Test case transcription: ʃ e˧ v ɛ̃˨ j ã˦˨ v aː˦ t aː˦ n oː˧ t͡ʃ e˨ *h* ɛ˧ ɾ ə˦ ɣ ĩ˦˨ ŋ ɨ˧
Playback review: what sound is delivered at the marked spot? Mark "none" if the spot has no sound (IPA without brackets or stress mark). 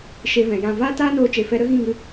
f